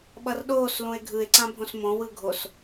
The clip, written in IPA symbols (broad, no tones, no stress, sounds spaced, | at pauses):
ɓ ʌ r ɗ oː s l ũ e̯ ɡʱ ɯ e̯ ǀ ã bʱ õ s m õ w ɯ ɡʱ o s